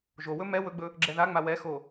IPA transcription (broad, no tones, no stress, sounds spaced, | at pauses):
ʒ o w ɵ m ɛ w ɵ ɡ͡b ɵ | ɡ͡ǁ ɛ ð a ŋ͡m a w ɛ x o